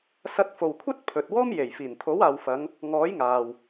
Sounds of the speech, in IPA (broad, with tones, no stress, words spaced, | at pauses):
sɐ˧t̚fo˨wkʷʰɐ˥t̚ pʰɵ˨t̚wɔː˥mje˨˩j fiː˨˩nt̪ʰo˨˥waː˨wfɐ˨˧ŋ | ŋɔː˨˥jŋaː˨w